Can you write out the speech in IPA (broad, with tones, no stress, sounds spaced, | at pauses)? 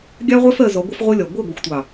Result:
ɡʲ ɑ˦ ʁʷ æ˦ f ɜ˨ z ɔ˨˦ ɡʷ ə˦ f ʁʷ ɜ˦ lʲ ɒ˨ ɡʷ ɜ˦˨ ɡʷ ʌ˨ xʷ tʷ ɑ˨